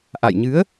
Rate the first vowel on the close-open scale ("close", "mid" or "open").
open